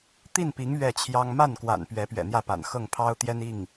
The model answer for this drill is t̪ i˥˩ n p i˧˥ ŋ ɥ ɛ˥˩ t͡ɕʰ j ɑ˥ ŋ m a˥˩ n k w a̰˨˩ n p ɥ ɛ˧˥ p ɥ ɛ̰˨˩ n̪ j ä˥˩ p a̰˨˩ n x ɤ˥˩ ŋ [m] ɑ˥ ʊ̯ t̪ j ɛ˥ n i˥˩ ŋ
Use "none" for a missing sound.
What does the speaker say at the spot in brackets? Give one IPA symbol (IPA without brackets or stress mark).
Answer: pʰ